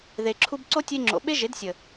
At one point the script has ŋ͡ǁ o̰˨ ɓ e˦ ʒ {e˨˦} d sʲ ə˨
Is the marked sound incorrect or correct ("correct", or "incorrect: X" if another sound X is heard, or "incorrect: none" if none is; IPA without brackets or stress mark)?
correct